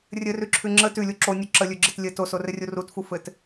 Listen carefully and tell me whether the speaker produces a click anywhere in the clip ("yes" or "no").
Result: yes